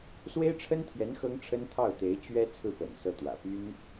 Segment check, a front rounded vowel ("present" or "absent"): present